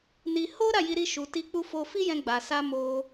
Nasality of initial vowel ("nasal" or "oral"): oral